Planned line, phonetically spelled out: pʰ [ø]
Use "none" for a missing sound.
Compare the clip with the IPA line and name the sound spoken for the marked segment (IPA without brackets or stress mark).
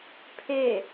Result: e